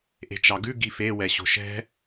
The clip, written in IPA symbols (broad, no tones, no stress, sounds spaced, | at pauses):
ʔ e̤ t͡ʃ ɑ ɡ ʉ ɡ i f e w ɛ ɕ o̤ ʃ ɛ̤